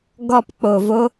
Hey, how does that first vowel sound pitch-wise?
low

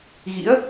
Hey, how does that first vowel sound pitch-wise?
rising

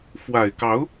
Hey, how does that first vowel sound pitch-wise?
low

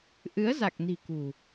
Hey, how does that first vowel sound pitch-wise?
rising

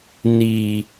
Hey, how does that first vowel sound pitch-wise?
low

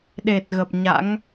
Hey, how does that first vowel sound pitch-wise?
low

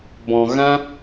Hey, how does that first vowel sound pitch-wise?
low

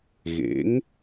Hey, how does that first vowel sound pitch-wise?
rising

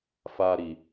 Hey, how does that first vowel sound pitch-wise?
high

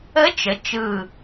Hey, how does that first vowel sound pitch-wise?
rising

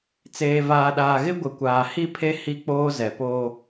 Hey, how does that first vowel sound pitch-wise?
low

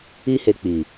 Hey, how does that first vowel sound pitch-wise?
high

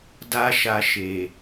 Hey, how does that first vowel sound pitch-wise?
high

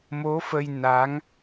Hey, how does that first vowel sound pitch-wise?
rising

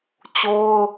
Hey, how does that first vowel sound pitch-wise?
high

